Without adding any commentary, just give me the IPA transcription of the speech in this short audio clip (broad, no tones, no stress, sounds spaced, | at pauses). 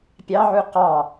pʲ ɑ ʕ u q ɑ